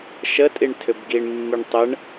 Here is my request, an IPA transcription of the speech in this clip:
ʃ ə tʼ i ɳ tʰ ʏ b ɡ i ɳ mː i ɳ tˤ ə ɳ

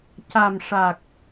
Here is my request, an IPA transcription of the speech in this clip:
c a˨˩ m ʂ a˨˩ k̚

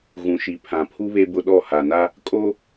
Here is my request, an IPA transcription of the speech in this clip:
ɣ ũ˨ ʃ i˨ pʰ ã˨ pʰ u˦ β e˦ b ʊ˦ ɗ ɔ˦˨ h a˨ n a˦ | kʼ o˦

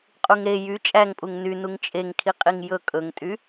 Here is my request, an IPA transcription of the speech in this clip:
qʼ u ŋ ɾ e j y t͡ʃʼ æ ŋ pʼ u ŋ n y n u ŋ t͡ʃʼ e ŋ kʰ i qʼ i ŋ j ɵ kʼ ɵ ŋ tʼ y

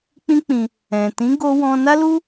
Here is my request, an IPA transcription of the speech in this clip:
k͡p ĩ˦ k͡p ĩ˧ | ɛ̃˨ t ĩ˨˦ ɡ o˧ w ɔ̃˧ n a˦ l u˦

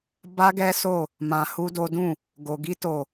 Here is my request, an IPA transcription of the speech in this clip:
b a˦ ɡ ɛ˦ s o˦˨ | m ã˧ h u˦ d o˦ d ũ˦˨ | ɡ o˧ ɡ i˦ t o˦˨

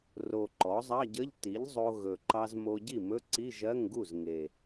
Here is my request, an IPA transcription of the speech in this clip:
r o˨˩ ǃ ɔ˩˥ zˤ ɑ˧˥˧ ɟ ə˧˥˧ ʎ t i˩˥ ʎ zˤ o˧ ɣ ɵ˨˩ ǃ ɑ˧ z m o˧ ɟ i˥˩ m ɵ˧˥˧ ǀ i˧˥˧ ʒ ɜ˧˥˧ ŋ ɡ u˥˩ z ŋ e˨˩

